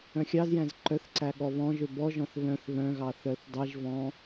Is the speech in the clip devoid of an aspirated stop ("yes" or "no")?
yes